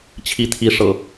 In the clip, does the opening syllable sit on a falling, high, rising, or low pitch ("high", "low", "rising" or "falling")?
rising